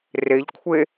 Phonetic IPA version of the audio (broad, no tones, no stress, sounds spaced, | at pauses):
r e ʎ kʷʰ e